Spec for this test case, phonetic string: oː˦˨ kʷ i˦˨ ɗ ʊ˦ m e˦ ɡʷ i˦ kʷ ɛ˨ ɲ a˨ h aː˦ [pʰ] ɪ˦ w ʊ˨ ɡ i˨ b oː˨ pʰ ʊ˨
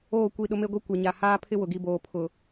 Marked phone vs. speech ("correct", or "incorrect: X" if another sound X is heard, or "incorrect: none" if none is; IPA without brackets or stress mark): correct